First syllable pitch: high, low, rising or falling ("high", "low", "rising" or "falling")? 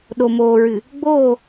low